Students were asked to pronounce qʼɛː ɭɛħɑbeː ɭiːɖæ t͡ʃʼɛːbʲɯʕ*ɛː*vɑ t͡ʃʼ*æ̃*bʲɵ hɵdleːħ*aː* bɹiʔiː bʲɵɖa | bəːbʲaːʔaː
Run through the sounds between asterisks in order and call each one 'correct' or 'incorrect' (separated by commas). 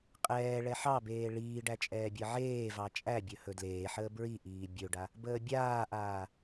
incorrect, incorrect, incorrect